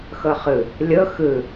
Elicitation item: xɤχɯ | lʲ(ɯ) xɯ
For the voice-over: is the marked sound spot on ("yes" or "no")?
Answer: no